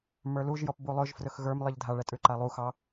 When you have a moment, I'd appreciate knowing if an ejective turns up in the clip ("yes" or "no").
yes